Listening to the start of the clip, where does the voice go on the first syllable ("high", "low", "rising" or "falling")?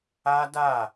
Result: high